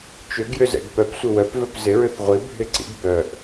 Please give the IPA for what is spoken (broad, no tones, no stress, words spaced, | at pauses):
t͡ʃʏɡjʏzɛ̰ɡ pœpsʷɪ wœpvœp zɪɹʏθ ʁʷibʱɪ ǀḭɡ bœʔ